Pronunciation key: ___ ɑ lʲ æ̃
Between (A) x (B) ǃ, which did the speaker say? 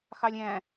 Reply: A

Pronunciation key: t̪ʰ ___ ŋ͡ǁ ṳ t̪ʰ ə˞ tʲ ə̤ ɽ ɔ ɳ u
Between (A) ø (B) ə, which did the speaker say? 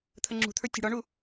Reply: B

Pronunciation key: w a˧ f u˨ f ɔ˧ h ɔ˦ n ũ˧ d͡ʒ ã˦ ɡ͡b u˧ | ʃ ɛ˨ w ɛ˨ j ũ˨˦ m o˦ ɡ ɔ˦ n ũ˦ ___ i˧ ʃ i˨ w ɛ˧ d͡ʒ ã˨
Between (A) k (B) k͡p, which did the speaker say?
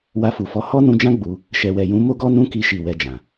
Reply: A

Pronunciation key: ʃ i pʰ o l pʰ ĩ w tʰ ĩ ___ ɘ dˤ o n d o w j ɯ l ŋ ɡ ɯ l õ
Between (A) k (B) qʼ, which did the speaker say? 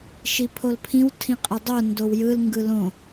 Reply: B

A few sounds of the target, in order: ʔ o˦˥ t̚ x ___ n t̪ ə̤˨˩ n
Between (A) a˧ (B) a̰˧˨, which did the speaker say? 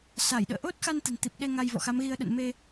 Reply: A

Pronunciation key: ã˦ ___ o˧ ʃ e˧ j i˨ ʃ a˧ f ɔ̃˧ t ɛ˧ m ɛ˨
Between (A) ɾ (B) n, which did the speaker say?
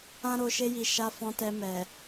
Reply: A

